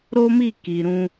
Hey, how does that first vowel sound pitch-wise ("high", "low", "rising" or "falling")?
high